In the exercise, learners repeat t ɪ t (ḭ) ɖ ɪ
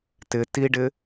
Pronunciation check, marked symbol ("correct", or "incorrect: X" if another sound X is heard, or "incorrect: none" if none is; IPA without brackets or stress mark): incorrect: i